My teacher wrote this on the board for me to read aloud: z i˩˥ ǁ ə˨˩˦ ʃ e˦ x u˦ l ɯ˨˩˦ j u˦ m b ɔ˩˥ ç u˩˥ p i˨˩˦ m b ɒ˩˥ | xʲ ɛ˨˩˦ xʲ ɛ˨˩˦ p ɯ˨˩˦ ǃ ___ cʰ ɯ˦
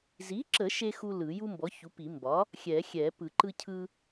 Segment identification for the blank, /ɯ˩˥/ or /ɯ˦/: ɯ˦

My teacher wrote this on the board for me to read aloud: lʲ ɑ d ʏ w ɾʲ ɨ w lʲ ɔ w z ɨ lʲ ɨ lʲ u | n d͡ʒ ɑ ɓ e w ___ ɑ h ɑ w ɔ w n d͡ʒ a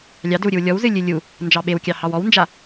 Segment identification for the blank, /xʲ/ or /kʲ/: kʲ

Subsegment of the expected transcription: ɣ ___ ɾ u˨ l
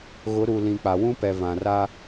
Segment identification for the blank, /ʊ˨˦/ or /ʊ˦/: ʊ˨˦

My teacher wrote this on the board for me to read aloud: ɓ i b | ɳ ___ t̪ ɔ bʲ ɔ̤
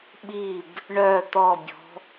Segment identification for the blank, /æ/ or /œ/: œ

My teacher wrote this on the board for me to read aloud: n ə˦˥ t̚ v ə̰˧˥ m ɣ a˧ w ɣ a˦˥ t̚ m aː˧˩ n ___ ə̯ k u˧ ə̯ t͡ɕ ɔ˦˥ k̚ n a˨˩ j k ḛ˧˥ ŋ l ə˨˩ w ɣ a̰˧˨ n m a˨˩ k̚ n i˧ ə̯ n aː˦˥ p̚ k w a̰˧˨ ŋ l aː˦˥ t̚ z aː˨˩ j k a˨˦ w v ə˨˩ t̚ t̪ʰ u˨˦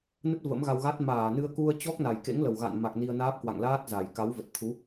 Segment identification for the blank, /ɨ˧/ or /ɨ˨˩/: ɨ˧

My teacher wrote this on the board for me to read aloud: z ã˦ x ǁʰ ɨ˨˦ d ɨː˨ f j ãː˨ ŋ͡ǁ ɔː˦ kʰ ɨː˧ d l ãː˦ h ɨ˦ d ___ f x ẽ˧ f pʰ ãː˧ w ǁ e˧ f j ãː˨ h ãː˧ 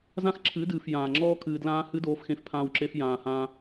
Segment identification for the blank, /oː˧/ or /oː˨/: oː˧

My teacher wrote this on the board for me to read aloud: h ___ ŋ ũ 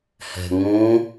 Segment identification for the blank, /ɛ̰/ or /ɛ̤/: ɛ̤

